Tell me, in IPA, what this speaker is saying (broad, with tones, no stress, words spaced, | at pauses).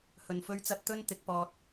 hɵ˧nfɵ˥ɥt͡sɐ˥t̚ t̪ɵ˥n t̪ɪ˨˥k̚pɔː˧t̚